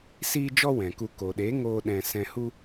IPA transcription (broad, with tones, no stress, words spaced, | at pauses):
siː˦d͡ʒɔ˦wɛ̃˨ku˧ ko˨ɗe˨˦ ŋoː˦ɗɛ̃˧ sɛ̃˧hu˦